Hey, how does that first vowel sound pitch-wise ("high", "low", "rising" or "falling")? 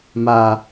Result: low